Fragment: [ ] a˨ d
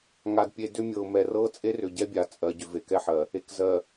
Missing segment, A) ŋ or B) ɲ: A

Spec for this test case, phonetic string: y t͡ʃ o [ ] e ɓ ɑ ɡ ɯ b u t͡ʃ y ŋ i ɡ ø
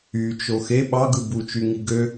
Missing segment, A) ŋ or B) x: B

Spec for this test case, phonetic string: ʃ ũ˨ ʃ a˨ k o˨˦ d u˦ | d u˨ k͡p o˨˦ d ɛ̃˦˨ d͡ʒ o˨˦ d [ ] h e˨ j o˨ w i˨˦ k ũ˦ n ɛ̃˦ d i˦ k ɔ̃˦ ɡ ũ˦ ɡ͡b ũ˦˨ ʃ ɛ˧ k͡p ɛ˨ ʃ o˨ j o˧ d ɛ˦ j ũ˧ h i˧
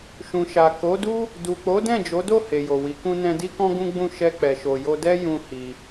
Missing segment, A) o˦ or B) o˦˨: B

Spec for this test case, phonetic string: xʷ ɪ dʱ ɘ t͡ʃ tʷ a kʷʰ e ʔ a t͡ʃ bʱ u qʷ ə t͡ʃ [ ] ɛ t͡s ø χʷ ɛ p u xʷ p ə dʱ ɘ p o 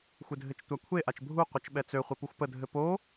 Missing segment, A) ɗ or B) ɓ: B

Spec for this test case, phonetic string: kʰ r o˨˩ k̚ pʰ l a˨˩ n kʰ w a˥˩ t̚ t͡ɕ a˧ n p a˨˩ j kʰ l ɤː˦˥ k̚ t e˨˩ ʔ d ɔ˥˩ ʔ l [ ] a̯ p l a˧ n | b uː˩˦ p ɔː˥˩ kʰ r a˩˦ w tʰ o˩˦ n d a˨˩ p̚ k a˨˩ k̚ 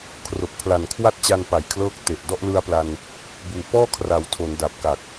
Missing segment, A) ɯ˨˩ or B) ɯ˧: B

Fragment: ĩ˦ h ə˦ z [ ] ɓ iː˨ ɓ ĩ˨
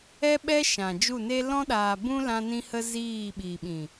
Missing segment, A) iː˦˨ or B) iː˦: A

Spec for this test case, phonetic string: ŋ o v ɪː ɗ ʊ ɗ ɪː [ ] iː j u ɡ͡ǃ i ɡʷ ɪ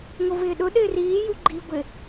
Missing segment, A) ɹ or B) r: B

